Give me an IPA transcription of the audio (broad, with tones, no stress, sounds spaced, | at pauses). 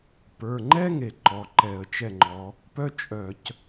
p ə˞˩˧˩ ŋ͡ǃ ɛ˥ ŋ e˩ ǃ ɔ˩˧˩ ǃ ɛ˧˩˧ ə̯ t͡ʃ ɛ˥˩ ŋ͡ǃ ɔ˨˦ | p œ˥ t͡ʃʼ œ˧˩˧ c